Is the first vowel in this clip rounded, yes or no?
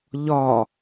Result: yes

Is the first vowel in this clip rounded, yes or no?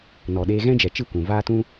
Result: yes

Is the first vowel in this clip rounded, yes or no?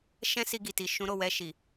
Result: no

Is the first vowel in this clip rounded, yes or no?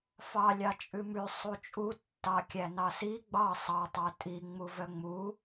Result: no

